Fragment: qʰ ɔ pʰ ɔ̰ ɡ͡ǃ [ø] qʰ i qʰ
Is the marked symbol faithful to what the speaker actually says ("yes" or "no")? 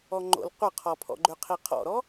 yes